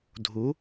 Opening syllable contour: rising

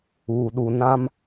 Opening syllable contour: low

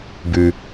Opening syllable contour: low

